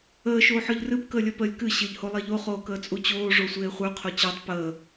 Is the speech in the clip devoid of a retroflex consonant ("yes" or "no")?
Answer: no